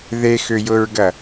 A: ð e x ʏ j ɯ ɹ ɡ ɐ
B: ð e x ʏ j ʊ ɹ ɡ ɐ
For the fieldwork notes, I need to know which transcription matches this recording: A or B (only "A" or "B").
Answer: B